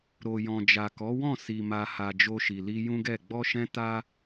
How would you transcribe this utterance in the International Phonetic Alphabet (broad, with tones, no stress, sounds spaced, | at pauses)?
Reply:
ɾ o˨ j ɔ̃˨ d͡ʒ a˨ k ɔ˨˦ w ɔ̃˦˨ s i˨ m a˨ h a˨ d͡ʒ o˧ ʃ i˨ l i˧ j ũ˦ ɡ ɛ˦˨ ɡ͡b ɔ˧ ʃ ɛ̃˧ t a˦